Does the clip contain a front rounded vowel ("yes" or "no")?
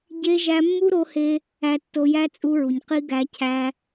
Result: no